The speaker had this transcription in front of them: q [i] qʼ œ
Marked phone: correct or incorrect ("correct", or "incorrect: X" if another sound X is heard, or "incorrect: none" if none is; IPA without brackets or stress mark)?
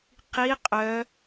correct